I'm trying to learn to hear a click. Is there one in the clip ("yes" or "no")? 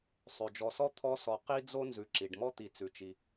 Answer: yes